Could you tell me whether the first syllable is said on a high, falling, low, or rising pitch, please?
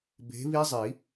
rising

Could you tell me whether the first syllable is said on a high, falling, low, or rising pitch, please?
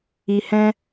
low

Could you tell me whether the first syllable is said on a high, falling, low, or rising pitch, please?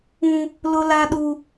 high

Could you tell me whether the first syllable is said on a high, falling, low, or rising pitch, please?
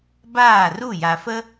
falling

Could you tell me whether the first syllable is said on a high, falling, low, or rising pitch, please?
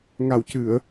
low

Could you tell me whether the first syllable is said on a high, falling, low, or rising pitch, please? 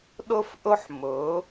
high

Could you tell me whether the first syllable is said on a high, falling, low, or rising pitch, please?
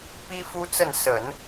high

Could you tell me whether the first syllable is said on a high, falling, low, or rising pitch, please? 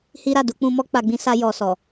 high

